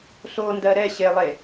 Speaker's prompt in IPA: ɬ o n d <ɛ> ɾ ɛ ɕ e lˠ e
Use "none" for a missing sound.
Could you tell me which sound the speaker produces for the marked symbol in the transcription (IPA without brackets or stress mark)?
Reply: ɜ